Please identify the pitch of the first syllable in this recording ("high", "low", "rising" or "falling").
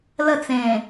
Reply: falling